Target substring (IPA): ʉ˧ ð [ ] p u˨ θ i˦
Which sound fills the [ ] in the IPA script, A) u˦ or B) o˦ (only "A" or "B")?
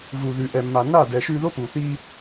B